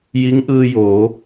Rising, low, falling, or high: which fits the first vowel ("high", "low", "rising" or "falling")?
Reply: rising